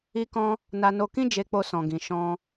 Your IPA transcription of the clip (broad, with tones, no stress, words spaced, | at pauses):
i˦kɔ̃˦ | na˧no˧kĩ˦ d͡ʒe˧k͡po˧sɔ̃˨ɡĩ˨ ʃɔ̃˧